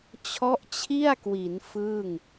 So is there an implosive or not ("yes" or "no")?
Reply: no